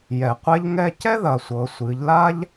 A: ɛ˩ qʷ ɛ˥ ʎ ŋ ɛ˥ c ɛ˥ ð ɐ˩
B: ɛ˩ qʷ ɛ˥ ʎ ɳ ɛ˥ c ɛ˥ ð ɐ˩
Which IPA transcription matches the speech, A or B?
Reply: A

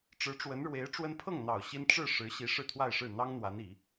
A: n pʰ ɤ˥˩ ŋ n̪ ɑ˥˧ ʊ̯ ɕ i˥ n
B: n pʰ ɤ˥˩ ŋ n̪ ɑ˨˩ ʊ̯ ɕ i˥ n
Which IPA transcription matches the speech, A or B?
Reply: B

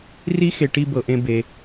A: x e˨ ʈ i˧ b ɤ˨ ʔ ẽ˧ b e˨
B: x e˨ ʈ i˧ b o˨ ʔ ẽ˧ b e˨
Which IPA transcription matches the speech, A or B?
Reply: A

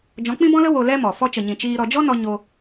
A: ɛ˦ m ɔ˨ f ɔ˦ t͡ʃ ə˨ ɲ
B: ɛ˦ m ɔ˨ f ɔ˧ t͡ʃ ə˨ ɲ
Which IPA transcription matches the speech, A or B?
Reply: B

